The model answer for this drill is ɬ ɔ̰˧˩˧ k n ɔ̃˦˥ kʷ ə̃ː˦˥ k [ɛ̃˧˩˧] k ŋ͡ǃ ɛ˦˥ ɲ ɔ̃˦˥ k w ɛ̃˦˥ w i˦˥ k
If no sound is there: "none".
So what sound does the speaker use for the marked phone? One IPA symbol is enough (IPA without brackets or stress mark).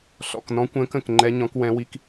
ə̃˧˩˧